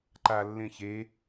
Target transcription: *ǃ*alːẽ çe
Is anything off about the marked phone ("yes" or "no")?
no